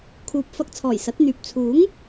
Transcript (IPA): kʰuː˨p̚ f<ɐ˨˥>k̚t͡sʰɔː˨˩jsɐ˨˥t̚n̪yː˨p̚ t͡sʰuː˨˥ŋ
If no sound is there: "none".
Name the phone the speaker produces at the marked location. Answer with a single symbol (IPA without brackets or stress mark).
ɐ˧